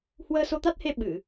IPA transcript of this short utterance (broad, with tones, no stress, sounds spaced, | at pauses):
h w əː˧ s o˧ t̪ a˦˥ t̚ h e˧ ɓ ɨ˧˩˨